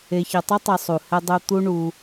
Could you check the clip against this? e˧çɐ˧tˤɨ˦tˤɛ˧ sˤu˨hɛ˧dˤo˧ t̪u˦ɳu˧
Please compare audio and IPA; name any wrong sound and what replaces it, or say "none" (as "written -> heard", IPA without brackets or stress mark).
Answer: none